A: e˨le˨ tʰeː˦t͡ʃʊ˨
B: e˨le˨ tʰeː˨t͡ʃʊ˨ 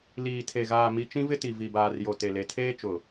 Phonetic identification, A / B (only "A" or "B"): A